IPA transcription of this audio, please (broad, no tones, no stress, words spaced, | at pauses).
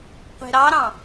qʷe̤ɾɑɾɑ̃